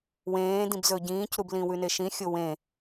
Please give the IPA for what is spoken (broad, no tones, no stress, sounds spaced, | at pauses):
w ẽː d ĩ b z ɵ ɟ ĩː c ɾ u b l ĩ w ʉ n e ʃ ĩ xʲ o w ẽ